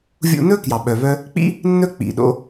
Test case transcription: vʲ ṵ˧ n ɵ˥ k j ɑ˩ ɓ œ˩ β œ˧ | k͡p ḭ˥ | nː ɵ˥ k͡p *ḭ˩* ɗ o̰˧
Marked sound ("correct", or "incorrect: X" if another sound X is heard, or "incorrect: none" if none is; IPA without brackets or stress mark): correct